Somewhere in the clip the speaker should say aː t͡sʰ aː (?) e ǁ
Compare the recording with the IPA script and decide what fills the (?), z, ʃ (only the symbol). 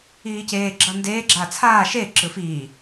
ʃ